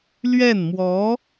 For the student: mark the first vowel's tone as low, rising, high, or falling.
falling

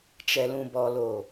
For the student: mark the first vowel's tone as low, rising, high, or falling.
low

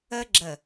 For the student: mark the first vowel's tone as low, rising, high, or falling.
high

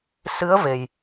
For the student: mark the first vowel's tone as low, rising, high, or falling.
rising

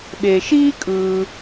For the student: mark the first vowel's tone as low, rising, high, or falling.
low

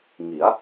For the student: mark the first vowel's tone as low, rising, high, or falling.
rising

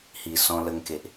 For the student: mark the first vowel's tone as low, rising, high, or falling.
low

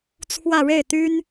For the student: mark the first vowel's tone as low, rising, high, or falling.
falling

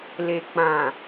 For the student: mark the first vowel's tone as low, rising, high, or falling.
low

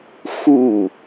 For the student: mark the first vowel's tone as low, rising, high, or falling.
falling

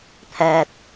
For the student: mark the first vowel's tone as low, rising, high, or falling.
high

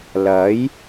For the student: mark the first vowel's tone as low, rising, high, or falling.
rising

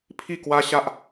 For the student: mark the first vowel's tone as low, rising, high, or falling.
falling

